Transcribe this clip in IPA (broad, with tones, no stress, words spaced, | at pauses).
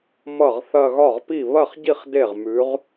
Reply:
mʌ˥˩ʁθɐ˥˧ ɣɒ˥˩ʁpi˥˩ βɐ˥˩χɟi˥˩χ de˥˩ʁmʉ˨˥ʁ